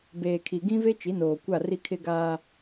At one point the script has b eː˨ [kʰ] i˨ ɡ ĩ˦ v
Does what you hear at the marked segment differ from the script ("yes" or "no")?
no